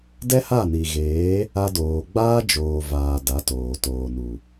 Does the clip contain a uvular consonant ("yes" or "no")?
no